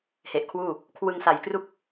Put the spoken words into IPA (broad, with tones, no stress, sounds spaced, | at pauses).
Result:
h e˨˩ ʔ kʰ w uː˥˩ | kʰ w ɯ˧ ŋ s a˨˩ j k r u˥˩ k̚